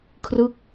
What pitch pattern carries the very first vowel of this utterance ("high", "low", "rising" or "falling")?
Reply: falling